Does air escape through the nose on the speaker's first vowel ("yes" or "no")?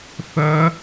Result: no